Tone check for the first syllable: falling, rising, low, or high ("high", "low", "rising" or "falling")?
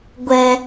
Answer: low